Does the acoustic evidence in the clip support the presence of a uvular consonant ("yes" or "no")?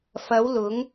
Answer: no